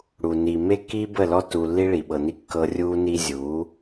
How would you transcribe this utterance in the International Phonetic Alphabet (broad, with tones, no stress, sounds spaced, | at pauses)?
ɽ u˨ n iː˨ m e˦ kː iː˦ b ə˦˨ l ɔ˦ t u˨ lː i˦ ɭ iː˨ ɓ ɤ˨ n i˦ kː ɤ˦ rʲ uː˦ n i˦ zʲ uː˨˦